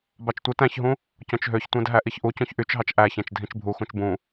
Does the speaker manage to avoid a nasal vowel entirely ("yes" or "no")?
no